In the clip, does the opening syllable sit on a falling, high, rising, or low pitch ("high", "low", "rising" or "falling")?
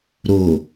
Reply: low